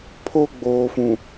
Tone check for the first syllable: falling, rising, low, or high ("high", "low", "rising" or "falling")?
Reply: high